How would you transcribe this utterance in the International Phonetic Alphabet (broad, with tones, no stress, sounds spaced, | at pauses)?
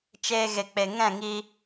t͡ʃ eː˧ ɣ e˨ k͡p e˨ ŋ ɛ̃˦˨ ŋ i˧